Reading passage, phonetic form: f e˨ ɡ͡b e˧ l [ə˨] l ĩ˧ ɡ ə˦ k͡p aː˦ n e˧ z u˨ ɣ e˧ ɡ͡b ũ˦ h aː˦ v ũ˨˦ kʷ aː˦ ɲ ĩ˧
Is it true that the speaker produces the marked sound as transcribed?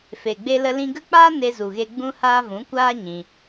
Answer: no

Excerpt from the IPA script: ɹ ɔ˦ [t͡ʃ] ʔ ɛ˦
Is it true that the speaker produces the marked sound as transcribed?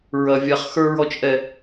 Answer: yes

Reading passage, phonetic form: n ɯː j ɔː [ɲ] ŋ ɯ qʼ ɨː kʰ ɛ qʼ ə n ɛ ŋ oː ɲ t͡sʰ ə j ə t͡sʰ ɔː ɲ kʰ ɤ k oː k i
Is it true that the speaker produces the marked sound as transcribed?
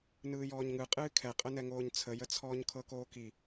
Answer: yes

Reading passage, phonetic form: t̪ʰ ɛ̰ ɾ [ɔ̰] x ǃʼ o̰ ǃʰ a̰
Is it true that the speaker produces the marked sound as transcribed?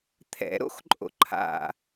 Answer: no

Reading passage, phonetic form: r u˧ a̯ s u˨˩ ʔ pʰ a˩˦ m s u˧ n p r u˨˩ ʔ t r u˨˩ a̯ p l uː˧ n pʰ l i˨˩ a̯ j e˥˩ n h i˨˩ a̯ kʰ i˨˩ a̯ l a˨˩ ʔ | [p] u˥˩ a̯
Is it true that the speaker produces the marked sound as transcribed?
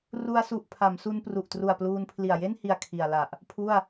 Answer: no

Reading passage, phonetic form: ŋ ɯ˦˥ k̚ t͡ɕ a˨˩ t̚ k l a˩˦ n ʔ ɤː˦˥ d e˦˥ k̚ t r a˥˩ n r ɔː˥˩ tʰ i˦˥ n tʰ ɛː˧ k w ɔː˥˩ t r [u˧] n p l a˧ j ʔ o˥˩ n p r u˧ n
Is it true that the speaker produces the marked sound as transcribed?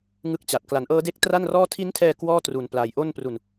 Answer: yes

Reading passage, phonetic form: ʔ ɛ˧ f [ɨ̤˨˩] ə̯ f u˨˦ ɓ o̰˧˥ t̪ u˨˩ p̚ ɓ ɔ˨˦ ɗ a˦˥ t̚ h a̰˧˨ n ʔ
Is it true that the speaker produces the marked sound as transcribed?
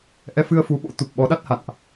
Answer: no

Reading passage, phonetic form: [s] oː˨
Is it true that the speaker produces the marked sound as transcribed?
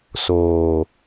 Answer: yes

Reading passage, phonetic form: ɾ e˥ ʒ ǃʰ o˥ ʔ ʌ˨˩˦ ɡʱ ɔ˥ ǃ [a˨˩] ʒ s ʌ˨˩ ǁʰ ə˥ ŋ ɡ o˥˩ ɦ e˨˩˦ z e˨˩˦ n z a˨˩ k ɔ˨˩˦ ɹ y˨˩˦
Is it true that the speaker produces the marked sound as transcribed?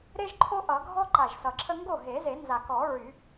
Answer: yes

